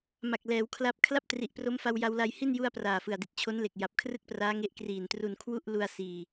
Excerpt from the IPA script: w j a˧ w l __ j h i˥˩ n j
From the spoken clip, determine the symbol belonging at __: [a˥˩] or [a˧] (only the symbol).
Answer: a˧